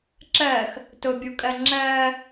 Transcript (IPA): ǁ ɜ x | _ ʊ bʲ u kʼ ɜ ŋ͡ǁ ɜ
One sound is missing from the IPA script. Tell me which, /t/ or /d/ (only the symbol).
t